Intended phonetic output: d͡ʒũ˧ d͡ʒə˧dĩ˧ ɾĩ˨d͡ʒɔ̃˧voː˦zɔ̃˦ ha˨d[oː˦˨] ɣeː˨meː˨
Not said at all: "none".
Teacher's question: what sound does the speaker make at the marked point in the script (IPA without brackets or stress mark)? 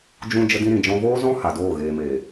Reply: oː˦˨